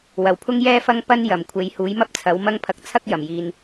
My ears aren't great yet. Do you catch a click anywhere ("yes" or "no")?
no